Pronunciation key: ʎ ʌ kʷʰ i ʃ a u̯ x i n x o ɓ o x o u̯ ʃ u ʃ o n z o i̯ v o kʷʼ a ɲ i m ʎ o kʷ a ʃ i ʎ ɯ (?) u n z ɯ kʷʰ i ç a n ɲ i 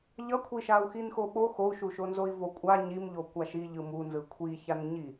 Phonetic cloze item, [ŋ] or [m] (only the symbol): m